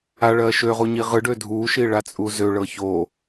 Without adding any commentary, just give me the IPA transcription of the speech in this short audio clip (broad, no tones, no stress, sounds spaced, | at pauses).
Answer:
a ɭ ɜ ʃ ø ʁ u ɲ i ʁ ɯ ɖ ø dʱ u ʃ i ɭ a t͡sʼ u z ø ɭ ɤ ç o